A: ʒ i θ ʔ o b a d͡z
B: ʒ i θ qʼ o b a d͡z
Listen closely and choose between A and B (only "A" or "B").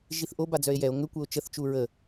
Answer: A